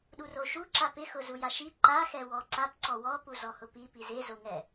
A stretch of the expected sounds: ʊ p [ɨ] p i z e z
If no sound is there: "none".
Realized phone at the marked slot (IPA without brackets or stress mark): i